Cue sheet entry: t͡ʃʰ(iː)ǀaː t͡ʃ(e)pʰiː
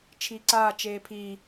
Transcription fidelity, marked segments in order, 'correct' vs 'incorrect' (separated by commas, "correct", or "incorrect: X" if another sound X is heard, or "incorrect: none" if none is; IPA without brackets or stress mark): correct, incorrect: eː